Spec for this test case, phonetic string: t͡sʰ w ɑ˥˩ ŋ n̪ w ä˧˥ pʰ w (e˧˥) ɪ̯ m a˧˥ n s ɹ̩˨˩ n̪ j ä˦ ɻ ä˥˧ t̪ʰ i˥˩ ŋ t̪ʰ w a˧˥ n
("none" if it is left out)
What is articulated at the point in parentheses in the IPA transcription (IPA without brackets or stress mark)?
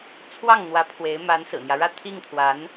e˧˥